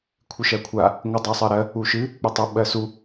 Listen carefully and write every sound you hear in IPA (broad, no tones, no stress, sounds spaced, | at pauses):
kʷʰ ɨ ʃ ɜ kʷʰ a | ŋʷ ɨ dˤ a sˤ ɜ ɾ ɜ | u ʃ ɨ | k͡p ɨ tˤ u ɓ ɜ s u